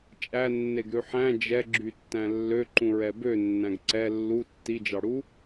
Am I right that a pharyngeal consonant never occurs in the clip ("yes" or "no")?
no